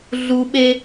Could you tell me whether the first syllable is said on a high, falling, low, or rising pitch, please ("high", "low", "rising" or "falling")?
high